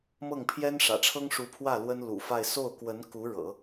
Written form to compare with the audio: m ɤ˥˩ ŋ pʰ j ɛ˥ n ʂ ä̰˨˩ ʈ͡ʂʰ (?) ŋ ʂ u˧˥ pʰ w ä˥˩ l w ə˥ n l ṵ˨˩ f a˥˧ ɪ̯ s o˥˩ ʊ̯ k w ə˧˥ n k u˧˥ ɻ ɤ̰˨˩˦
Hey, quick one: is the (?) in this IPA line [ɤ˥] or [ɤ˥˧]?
ɤ˥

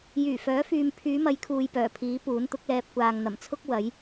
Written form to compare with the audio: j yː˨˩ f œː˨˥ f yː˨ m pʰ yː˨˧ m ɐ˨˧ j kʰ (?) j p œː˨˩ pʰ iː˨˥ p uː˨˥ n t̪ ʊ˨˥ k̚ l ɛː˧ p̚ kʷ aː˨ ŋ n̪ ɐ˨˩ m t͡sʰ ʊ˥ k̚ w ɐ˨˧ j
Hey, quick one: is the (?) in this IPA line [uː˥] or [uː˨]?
uː˨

